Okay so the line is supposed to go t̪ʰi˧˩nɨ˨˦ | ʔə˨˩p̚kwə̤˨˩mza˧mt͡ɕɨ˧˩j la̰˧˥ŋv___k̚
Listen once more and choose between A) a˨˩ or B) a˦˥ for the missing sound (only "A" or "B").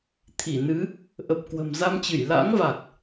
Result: A